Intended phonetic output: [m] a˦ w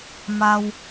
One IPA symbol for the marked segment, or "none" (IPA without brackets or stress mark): m